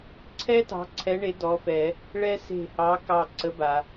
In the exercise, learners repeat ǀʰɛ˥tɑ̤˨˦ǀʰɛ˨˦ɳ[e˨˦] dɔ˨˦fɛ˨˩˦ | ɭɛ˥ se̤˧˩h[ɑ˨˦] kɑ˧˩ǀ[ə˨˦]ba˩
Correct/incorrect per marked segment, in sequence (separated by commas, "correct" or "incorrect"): correct, correct, correct